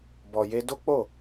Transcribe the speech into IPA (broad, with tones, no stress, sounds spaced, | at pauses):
b ɔ˨ j e˧ d o˦ k͡p o˦˨